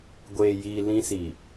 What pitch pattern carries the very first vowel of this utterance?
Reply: low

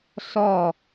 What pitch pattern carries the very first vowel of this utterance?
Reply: falling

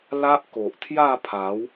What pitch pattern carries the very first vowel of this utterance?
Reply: high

